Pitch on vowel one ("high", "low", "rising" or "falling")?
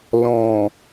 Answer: low